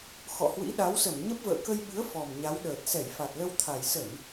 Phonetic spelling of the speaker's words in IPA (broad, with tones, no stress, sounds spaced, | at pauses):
x ɔ̰˧˨ h w ḭ˧˥ ɗ a˨˦ w s ə˧˩ m ɲ ə˦˥ p̚ v ə̰ː˧˨ k ə˧ j ɓ ɨ˨˦ ə̯ f ɔ˨˩ m ɲ a˨˦ w ɗ əː˨˩ t̚ s ɛ˧˩ j f a˨˩ t̚ l ə˧ w t̪ʰ a˨˩ j s ə˧˩˨ n